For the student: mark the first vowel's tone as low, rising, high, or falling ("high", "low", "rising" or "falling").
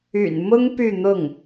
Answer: low